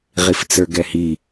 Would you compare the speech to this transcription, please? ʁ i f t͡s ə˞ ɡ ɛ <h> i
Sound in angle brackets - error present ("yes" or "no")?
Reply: no